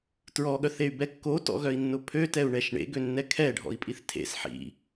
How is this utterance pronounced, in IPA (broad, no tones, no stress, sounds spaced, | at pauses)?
t ɹ ɔ ɠ œ θ e y̯ b ɛ kː o t ɔ̰ ɣ œ i̯ nː ʊ pʰ ø t ɛ u̯ ɳ ɛ ʃ ɳ ḛ ɡ ø nː ɛ kʰ ɛ ɖʱ ɔ̰ i̯ pʼ i θ tʰ ḛ s ħ ḭ